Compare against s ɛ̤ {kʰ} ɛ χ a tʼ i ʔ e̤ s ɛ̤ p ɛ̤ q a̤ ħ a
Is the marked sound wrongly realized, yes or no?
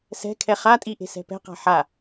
no